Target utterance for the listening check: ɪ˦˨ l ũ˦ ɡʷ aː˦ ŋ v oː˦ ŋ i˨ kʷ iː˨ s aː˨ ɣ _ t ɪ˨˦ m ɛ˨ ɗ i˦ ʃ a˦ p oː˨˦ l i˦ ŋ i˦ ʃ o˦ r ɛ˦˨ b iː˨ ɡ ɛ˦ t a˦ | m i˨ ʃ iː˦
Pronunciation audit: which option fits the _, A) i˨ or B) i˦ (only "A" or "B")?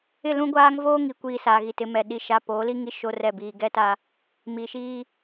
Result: A